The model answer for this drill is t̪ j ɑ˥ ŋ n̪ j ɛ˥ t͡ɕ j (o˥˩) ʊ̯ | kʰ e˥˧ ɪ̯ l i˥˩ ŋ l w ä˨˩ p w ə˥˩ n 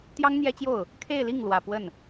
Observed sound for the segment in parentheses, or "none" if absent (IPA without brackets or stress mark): o˥˩